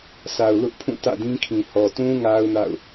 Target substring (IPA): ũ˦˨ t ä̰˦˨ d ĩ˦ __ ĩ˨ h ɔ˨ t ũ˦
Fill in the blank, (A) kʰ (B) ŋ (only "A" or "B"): A